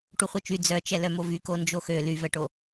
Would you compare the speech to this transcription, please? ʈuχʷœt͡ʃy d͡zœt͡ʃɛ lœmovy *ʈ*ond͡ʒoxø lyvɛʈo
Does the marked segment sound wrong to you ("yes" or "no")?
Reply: yes